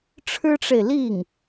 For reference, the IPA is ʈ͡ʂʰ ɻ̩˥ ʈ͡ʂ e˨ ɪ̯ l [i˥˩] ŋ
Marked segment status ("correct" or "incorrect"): correct